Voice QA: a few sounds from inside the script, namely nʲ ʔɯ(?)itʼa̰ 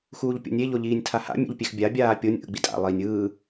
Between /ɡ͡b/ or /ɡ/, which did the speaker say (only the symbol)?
ɡ͡b